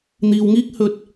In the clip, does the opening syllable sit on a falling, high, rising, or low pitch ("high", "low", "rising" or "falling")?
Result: low